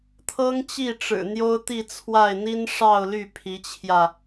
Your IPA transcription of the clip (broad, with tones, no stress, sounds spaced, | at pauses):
t̪ʰ ɤ˥ ŋ t͡ɕ i˥˩ ʈ͡ʂ ɻ̩˨˩ n̪ j o˥ ʊ̯ t̪ i˥˧ t͡sʰ w a˥˩ ɪ̯ n̪ i˥ n ʂ ɑ˥˧ ʊ̯ l y˥˩ pʰ i˧˥ t͡ɕʰ j ä˧